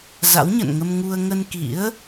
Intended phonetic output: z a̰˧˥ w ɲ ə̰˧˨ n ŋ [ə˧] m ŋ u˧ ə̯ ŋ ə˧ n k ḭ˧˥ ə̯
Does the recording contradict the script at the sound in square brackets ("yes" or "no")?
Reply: no